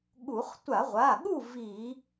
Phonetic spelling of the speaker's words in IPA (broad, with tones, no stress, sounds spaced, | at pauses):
ɠ u˧˩˧ χ tʷ a˧˩˧ ʁʷ a˩˧˩ ɠ u˥˨ v i˧˩˧